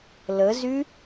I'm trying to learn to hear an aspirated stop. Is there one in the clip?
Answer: no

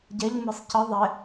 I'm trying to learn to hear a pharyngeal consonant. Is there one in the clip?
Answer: no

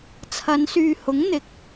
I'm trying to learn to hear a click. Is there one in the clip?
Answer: no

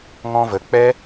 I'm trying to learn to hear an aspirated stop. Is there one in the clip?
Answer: no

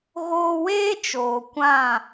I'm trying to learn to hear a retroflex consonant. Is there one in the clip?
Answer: no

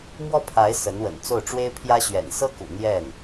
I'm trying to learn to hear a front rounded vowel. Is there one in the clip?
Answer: no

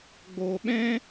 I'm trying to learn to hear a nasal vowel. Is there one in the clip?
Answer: yes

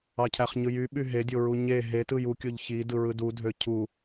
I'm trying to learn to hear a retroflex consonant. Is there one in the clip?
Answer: no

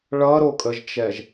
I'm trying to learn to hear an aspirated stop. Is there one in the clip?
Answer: no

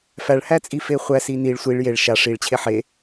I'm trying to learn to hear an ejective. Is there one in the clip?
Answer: yes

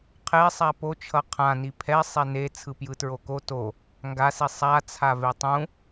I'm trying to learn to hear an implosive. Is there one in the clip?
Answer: no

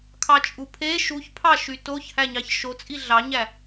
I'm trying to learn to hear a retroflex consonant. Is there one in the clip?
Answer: no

